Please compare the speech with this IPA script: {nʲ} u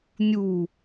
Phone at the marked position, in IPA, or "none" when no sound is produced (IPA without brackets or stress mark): nʲ